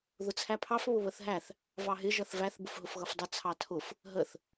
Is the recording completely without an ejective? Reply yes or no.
yes